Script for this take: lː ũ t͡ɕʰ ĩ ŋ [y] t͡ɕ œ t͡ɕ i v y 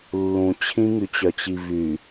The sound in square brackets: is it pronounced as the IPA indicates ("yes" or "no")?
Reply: yes